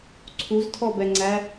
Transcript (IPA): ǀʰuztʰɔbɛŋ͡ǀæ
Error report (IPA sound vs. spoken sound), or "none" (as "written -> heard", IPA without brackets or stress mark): none